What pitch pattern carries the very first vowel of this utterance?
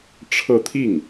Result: falling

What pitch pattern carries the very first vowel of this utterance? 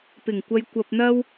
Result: low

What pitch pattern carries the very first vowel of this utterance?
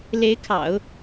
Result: rising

